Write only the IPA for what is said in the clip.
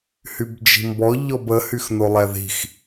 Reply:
h y b d͡ʒ i̤ m b ɔ ʎ ɔ b ə h y x n o lˠ ɛ ð i̤ x

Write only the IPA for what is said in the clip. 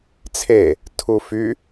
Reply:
t͡sʰ e | tʰ u f y

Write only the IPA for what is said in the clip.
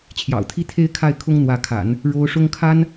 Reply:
t͡ɕʰ j ɑ̰˨˩ ʊ̯ t̪ʰ i˥ t̪ʰ e˥ ɪ̯ kʰ a˥˩ ɪ̯ kʰ ʊ˥ ŋ n̪ w ä˧˥ kʰ a̰˨˩˦ n | ɻ o˥ ʊ̯ ʂ ʊ˥ ŋ kʰ a˥ n

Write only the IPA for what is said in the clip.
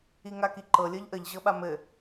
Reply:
i ŋ a k i ǃ ɤ lʲ ɤ ʎ ʔ ə ʎ ʑ ɤ ɓ a m ɘ

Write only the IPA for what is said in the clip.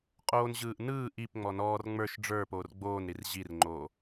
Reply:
qʼ oː n ʑ ɯː ʔ n ɯː ʔ i p ŋ͡m ɔ n ɔː r ŋ͡m ə˞ ʃ ɖ͡ʐ ə˞ p oː r ɡ͡b oː n ɾ i r ʑ i r ŋ͡ǃ oː

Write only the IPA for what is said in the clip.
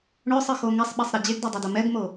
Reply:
ɳ ɵ sˤ ɯ x o ŋ ɛ sˤ ɓ ɛ sˤ ɾ i d͡ʑ e ɡ d ɔ dˤ ɛ d o m ɛ ɡ m o

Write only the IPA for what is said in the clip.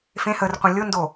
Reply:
f ẽ h ə r qʷ ẽ lʲ ʊ n d o

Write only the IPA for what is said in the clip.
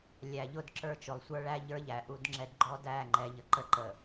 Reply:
lʲ æ˨ ʎ ʊ˦ d ǁ ə˞˦ t͡ʃ ʊ˨ lˠ sʷ ə˞˦ ɭ æ˦ ʎ ə˞˦ ʎ æ˨ ʔ u˦ d ŋ͡ǁ ɛ˦ d ɡ͡ǃ ɔ˦ d æ˦˨ ŋ͡ǃ ɛ˨ ʎ ə˨ ǃ ə˦ ǃ ə˨

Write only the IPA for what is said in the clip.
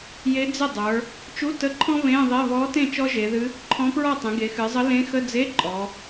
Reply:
j e˧˥ d͡z ɪ˥˩ dˤ ə˞˩˧ | t͡ʃ u˧˥˧ t ə˧˥˧ ǃʰ ɔ̃˥ β ẽ˧˥˧ ðˤ e˧˥˧ β ɔ˧˥ t ẽ˥˩ t͡ʃ ɔ˥ ʒ e˩˧ ð ɨ˧˥ | ǃʰ ɔ̃˧˥ p ɹ ɔ˥˩ tˤ ẽ˩˧ ɡ e˩˧ x ɨ˩˧ zˤ ə˧˥ l ẽ˧˥ x ə˧˥˧ d͡z e˧˥˧ ǃʼ ɔ˩˧

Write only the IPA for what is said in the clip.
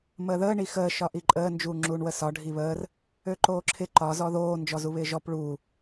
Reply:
m əː ð əː ɳ i x əː ʃ ɒ ʔ i ǃʼ əː n d͡ʒ uː ŋ͡ǁ uː ɳ w ə s ɒ ɖʱ i β əː r | ø ǃ oː ǁʰ ɪ ǃ ɒ z ɔ ð oː n d͡ʒ ɔ z u β ɪː ʒ ɔ p ɭ uː

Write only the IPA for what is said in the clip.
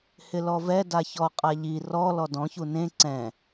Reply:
h ɪ l ɔ v ɛ d a ç ɔ qʼ a ʎ i r ɔ l ɔ d ɔ̃ ç u n ẽ ǀ ɛ̃

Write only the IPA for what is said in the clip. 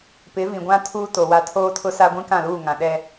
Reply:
p ɪ˨˦ v ĩ˨ ɡʷ ã˦ tʰ uː˦ t o˨ w a˦ tʰ oː˦ tʰ ʊ˦ s a˦ ɡʷ ĩ˦ k ã˦˨ l uː˦˨ ŋ ã˨ ɗ ɛ˦

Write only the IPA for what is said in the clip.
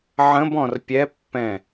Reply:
ʕ ə̃ b ɔ̃ r pʲ ɛ pː ɛ̃

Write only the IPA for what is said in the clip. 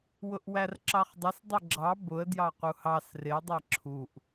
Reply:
w ʊ ʔ w æ r ǁ ɑ χ dˤ ʊ s dˤ ɪ ɡ͡ǁ ɑ b ʊ ə̯ d j ɑ q u h ɑ s r ɪ ə̯ dˤ æ ǁʰ u ʔ

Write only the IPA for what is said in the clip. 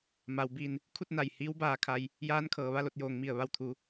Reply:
m a˩ w b iː˧˩ n | kʰ u˥˨ t̚ n a˧˩ j h iː˧˥ w b aː˧ kʰ a˧ j | j aː˧˥ n kʰ ɤː˩ ʋ a˥˨ l o˧ t̚ j oː˩ ŋ m i˧˩ ə̯ ʋ a˥˨ w t̪ʰ u˧

